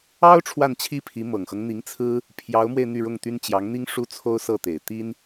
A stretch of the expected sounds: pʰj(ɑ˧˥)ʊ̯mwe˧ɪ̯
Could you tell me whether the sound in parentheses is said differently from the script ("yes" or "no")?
no